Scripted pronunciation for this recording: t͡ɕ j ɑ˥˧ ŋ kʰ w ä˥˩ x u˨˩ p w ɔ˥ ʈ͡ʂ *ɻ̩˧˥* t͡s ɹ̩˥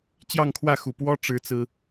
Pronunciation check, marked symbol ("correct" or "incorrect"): incorrect